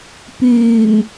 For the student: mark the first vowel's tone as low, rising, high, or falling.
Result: low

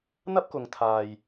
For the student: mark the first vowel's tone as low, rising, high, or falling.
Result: high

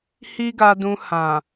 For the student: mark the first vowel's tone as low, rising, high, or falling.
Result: high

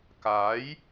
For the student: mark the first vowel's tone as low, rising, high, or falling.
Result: rising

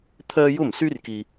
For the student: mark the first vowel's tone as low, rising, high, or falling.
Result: high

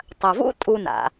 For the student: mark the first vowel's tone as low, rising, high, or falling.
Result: low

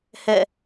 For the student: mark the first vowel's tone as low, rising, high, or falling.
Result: falling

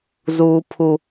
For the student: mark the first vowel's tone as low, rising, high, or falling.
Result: high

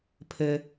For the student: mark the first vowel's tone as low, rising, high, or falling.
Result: low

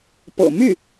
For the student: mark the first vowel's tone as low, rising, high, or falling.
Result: low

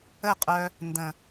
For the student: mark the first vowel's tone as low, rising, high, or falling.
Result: falling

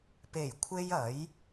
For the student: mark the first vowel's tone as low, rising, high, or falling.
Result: low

